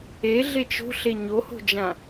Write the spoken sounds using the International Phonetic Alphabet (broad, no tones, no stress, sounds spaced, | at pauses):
e ɮ e t͡ʃ o̤ ɬ e ɲ o h o̤ d͡ʒ ã